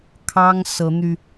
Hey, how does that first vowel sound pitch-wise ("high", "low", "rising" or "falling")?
high